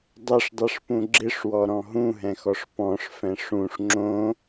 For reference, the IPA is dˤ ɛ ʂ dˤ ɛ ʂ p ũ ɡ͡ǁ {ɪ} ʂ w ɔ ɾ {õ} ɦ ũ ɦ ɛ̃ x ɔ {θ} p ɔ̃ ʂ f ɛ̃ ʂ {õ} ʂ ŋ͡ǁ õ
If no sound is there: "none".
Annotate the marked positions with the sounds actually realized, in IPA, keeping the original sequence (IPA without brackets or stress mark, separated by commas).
ɪ, ɔ̃, ʂ, ũ